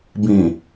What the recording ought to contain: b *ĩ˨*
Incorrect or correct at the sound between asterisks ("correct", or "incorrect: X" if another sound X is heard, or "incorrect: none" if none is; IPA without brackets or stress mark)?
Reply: correct